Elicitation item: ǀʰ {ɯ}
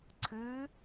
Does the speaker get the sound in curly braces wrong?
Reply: no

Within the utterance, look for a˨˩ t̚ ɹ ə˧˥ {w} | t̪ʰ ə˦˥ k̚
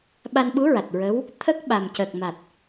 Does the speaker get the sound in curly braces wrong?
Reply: no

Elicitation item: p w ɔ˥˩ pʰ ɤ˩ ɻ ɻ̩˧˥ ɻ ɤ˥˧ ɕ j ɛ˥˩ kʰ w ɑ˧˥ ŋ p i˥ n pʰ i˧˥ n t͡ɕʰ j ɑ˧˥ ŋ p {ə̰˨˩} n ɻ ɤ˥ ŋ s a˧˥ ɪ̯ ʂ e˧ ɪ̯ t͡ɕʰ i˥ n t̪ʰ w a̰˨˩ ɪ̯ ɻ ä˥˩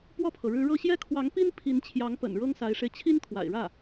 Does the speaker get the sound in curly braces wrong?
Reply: no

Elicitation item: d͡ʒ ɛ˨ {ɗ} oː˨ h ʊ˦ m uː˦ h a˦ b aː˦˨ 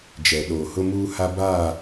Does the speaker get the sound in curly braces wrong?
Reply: no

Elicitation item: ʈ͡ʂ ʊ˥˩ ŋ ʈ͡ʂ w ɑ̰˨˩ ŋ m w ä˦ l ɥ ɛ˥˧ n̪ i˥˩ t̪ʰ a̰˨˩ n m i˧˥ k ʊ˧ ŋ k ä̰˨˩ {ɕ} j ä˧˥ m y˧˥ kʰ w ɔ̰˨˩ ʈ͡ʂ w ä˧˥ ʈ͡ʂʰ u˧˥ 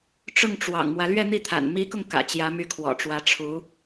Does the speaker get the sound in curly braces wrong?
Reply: yes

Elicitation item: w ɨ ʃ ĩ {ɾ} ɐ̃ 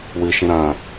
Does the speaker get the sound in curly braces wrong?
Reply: no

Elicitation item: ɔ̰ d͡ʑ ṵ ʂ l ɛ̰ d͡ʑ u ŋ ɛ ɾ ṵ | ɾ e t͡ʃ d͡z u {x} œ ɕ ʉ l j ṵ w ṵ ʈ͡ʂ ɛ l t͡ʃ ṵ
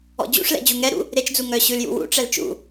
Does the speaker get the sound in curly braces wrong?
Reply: yes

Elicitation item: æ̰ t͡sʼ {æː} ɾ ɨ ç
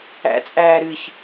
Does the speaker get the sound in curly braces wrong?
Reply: no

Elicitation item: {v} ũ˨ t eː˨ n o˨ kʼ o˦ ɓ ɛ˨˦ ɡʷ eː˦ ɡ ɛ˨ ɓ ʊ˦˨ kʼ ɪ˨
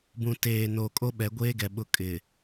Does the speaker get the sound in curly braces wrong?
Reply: yes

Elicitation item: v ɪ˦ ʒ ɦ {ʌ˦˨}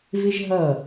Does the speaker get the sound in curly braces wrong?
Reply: no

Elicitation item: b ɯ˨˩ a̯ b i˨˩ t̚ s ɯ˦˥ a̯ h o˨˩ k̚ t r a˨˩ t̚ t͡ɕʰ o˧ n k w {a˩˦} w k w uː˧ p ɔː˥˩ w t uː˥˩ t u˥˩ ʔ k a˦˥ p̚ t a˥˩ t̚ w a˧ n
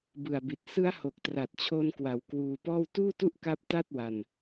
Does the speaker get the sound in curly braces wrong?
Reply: no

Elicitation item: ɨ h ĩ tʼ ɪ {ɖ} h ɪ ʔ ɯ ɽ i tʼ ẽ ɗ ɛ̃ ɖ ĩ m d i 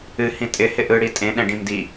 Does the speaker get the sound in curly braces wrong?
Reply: yes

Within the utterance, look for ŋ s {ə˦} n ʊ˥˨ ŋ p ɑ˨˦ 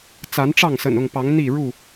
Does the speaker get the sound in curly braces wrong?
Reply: yes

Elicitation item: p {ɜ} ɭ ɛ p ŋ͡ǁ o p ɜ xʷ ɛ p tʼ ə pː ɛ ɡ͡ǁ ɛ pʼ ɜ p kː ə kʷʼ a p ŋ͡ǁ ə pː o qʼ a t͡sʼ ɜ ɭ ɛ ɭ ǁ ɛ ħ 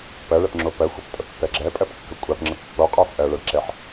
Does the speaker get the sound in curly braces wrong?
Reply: no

